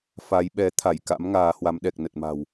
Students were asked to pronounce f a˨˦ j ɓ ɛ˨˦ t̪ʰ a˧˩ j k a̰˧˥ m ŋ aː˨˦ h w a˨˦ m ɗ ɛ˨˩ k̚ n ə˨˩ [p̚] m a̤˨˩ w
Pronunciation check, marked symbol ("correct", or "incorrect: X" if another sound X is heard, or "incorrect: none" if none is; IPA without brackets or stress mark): incorrect: t̚